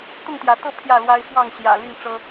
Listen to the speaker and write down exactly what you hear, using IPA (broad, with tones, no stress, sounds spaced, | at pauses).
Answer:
t̪ ʊ˥˨ ŋ t̪ j ä˨˦ t̪ ɤ˥˨ pʰ j ä˥˨ l w a˦ ɪ̯ f w ɑ˥˨ ŋ ɕ j ä̰˨˩ l y˥˨ n ʈ͡ʂ ɤ˦